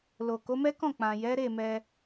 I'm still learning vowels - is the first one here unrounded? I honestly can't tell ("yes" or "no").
no